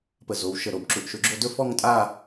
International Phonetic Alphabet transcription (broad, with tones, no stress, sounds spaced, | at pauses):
p ə˧˩ z o˩˧ w ʃ ə˧˩ ɾ o˧˩ b ǁ u˧˩ ʔ ʃ ɵ˧ ɡ͡ǁ o˥˧ d ɵ˥˧ f ɔ˥˧ ŋ tʼ a˥˧